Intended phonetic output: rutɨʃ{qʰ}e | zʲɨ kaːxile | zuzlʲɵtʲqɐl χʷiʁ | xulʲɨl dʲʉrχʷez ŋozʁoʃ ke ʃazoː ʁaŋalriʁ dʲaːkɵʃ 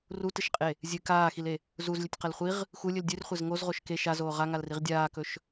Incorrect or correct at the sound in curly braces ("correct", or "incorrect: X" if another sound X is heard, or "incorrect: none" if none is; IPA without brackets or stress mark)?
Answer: incorrect: qʼ